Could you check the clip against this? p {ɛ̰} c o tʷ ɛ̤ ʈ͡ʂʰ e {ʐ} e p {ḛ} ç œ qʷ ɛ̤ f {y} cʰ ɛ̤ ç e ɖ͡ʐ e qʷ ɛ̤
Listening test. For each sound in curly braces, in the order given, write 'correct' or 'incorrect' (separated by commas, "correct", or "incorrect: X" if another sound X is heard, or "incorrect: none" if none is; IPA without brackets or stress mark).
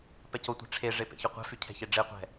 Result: incorrect: ɛ, correct, correct, correct